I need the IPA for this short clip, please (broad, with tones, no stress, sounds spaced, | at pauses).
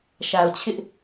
ʃ a˨ ʊ̯ t͡ɕʰ ɪ˦ ʔ